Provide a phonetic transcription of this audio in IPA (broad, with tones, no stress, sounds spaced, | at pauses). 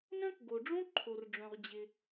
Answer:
n œ̃˥ k ɡ o˩ ɖ͡ʐ õ˥ ǃʰ o˩ r ɖ͡ʐ œ̃˩ ʁ d͡ʑ ɪ˩